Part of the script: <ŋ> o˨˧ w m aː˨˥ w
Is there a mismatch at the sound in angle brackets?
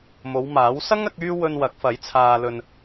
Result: yes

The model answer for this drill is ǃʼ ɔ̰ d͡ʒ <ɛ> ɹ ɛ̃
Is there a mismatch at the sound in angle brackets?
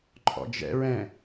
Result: yes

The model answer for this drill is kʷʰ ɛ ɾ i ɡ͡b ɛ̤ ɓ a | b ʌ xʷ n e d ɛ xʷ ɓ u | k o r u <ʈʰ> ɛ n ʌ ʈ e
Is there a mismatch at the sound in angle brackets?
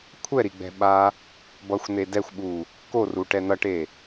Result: yes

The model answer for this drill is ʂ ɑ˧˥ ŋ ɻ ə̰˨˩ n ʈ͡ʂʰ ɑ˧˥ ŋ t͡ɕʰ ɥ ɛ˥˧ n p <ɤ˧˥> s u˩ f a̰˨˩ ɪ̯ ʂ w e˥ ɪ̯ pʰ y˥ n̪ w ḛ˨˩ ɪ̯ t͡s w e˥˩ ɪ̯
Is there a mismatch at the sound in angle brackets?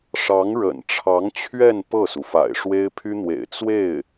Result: yes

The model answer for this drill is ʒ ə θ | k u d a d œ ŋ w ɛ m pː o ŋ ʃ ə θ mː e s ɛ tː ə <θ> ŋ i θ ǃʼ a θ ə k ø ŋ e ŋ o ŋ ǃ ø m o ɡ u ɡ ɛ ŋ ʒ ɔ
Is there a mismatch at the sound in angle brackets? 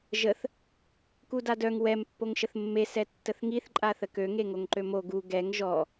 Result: no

